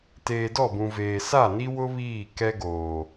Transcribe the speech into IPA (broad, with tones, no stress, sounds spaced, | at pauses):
t eː˨ d ɔ˦˨ b ũ˨ v eː˨ s a˦˨ n i˦ w ʊ˦ β iː˦˨ k ɛ˦ ɡ oː˨